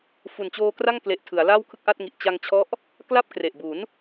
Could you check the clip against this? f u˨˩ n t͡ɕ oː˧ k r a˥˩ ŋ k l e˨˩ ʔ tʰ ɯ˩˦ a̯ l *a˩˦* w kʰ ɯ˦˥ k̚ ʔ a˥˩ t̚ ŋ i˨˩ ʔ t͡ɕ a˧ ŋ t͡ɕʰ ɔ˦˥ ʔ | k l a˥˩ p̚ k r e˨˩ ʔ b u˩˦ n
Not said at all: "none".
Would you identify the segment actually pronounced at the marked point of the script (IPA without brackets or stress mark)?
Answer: a˥˩